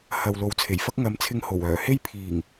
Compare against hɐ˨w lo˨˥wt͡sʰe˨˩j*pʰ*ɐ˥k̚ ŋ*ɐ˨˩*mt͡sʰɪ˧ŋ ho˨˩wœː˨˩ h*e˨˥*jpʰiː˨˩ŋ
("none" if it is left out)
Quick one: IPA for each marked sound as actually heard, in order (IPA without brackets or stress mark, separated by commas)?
f, ɐ˨˧, e˥